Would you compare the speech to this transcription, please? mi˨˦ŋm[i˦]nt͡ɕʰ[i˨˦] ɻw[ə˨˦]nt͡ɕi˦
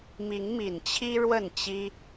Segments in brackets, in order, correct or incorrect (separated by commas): incorrect, incorrect, incorrect